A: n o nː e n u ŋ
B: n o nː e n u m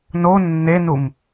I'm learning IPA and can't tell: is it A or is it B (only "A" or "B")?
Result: B